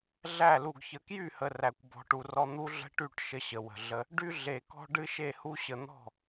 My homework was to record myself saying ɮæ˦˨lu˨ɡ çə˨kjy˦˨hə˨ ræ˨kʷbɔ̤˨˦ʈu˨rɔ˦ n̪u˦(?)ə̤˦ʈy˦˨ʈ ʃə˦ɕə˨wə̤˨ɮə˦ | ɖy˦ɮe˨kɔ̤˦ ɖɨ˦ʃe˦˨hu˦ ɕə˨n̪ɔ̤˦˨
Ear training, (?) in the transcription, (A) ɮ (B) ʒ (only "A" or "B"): A